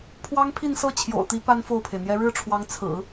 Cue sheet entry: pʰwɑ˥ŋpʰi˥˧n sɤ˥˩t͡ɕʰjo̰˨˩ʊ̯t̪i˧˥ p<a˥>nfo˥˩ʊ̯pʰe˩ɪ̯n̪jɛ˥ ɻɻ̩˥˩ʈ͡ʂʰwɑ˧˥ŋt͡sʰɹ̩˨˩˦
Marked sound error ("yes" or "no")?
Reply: no